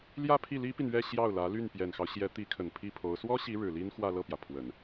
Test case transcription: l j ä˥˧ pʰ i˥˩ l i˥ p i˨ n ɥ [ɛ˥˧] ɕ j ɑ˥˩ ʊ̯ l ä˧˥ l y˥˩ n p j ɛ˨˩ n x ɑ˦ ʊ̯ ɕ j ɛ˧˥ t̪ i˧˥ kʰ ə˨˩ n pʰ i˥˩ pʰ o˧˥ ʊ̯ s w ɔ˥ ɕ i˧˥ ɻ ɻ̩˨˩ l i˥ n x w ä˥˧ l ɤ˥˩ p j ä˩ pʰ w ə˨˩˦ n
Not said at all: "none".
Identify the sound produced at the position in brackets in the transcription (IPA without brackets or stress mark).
ɛ˥˧